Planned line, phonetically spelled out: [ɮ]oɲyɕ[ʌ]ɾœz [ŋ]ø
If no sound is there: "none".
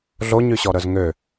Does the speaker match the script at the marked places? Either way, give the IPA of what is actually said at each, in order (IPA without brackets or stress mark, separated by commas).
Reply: ɮ, ɔ, ŋ